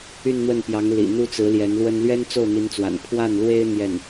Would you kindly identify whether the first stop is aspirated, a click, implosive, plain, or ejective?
plain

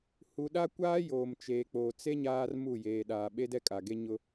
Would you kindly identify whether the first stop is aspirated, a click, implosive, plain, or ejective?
implosive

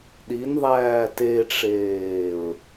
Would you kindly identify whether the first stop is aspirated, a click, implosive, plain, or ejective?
implosive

